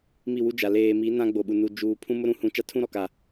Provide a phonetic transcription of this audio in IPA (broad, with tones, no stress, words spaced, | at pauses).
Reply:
mi˦˨wu˦d͡ʒa˨ leː˨mi˨˦ nã˦ɡ͡bo˨ɓu˨nu˨ d͡ʒuː˨ pʰũ˦mʊ˦ɾũ˦hũ˨˦ t͡ʃa˦tʰũ˦ɾɔ˨ka˨